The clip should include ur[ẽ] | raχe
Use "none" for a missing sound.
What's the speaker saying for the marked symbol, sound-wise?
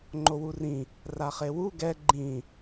ĩ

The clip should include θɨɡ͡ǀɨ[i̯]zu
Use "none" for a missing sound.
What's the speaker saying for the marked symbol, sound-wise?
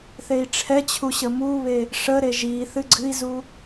i̯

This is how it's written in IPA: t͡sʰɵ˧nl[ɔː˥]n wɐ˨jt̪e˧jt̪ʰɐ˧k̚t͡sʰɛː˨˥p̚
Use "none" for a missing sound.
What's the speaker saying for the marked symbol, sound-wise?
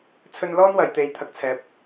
ɔː˥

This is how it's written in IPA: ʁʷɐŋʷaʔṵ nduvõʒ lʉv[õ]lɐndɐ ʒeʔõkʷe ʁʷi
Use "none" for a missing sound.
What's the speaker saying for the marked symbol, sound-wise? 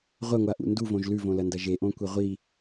õ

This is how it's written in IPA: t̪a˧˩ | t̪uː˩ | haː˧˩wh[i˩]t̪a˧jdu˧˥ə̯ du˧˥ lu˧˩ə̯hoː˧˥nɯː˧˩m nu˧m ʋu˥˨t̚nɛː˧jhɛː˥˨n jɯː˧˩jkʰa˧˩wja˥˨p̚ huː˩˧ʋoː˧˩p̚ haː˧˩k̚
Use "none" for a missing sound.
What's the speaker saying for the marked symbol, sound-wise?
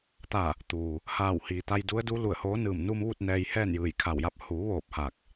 iː˩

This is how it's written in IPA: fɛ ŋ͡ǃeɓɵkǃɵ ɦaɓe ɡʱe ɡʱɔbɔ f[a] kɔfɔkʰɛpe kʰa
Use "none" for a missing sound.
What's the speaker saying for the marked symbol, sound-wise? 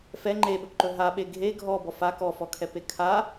a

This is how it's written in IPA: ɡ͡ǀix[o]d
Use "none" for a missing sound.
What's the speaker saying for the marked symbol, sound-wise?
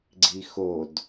o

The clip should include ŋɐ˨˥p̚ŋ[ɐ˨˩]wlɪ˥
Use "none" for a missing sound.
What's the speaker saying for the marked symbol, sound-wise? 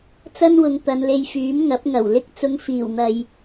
ɐ˨˩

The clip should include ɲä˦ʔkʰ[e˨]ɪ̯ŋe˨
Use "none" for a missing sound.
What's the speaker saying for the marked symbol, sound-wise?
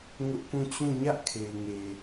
e˨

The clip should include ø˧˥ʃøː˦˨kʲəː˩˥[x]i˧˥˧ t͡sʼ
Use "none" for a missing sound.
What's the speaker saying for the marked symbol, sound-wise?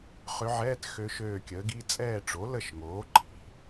ɡ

